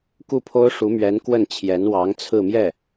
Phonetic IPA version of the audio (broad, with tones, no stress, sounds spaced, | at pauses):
k u˥˩ pʰ o˥ ʊ̯ ʂ u˧˥ m ɥ ɛ˧˥ n k w ə˥˩ n t͡ɕʰ j ɛ˧˥ n w ɑ˧˥ ŋ t͡sʰ ɹ̩˥˧ m j ɛ˥˩